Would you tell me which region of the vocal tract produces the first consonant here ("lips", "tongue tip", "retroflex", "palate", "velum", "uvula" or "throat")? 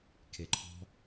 velum